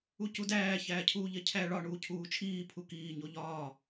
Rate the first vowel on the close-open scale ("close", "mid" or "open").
close